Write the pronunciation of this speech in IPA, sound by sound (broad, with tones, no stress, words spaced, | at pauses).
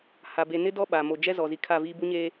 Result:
ha˨ be˨nɪ˦dɔ˦ ɓa˨ mo˨ d͡ʒɛ˦zɔ˨zi˨ kʰa˦˨viː˦ bu˦ɲeː˦